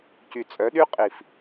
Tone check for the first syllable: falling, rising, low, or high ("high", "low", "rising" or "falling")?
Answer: low